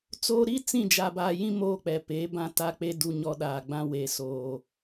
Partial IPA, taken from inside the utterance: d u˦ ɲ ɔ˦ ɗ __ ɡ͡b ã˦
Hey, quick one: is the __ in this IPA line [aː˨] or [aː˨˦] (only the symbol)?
aː˨